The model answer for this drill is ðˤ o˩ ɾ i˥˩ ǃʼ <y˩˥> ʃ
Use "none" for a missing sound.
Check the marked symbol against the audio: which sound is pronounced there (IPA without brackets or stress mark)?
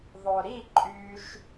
y˧